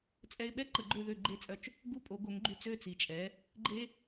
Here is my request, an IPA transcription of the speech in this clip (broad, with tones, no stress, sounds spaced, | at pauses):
t͡sʼ ɛ˧ ɪ̯ ɓ ɛ˥ ǃ ə˩˥ ɡ͡ǃ ø˥˩ ð ø˥˩ ɡ͡ǃ e˥˩ t͡sʼ œ˧ t͡ʃ | ɡ u˥˩ pʼ o˩˥ ɡ o˩˥ ŋ ɡ͡ǃ y˧ t͡s ø˥˩ t͡s i˩ t͡ʃʼ ɛ˩˥ | ɡ͡ǃ e˥